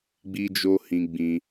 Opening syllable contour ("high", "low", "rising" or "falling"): high